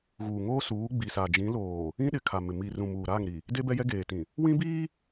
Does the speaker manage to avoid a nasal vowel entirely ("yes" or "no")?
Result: no